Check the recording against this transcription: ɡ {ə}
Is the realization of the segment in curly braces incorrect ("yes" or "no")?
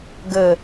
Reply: no